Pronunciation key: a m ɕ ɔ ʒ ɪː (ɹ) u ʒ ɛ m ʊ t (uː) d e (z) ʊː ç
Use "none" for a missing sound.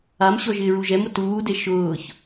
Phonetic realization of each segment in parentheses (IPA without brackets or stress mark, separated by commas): ɹ, uː, ʃ